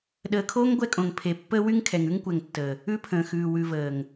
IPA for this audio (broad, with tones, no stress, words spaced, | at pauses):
ɗəː˨kʰoː˦ŋ ɡʷɛ˦kʼõ˨ŋ pʰe˨pːəː˦ wy˦ŋkʰɛ˨ŋʉ˦ŋkʷɛ˨ŋ tːəː˨ | ʉ˦pʰə̃ː˨xʉː˨ wʉ˨vəː˨ŋ